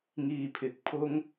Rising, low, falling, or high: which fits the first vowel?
low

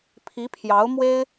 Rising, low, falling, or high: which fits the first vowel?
rising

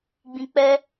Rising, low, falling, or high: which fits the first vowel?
low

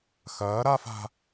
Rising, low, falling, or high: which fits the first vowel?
rising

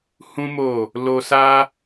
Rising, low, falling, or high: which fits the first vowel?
high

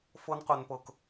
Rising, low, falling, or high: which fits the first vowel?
high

